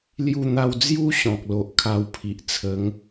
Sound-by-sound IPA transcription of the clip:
l j u˧ n̪ a˧ w d͡z j u˦ ɕ ɔ̃˨ k̚ l o˨ ʔ kʰ a˧ w pʰ i˨ ʔ t͡sʰ ə˨˦ ŋ

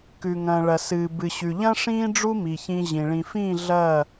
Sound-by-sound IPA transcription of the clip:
k ʉ˨ ŋ ɐ̃ː˨ ɭ ɐ˨ s ɨː˨ b ɨ˨ ɕ ʉ˨ ʎ ɐ̃˦ ʂ ĩː˦ ɖ͡ʐ u˦ m i˨ ç ĩ˧ ʑ ĩ˨ ɭ ĩ˨ f ĩː˦˨ ɮ ɐ˦˨

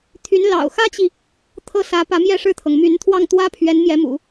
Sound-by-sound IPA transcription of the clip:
t̪ʰ y˧˥ n l ɑ̰˨˩ ʊ̯ x ä˥ t͡ɕ i˨ | t̪ʰ ɤ˥˩ s ä˧˥ p ä˧˥ m j ɛ˥˧ ʂ ɻ̩˥˩ t̪ʰ ɤ˩ ŋ m y˧˥ n t̪ʰ w ɑ˥˩ ŋ t̪ w ä˥ pʰ ɥ ɛ˧˥ n m j ɛ˧˥ m ṵ˨˩˦

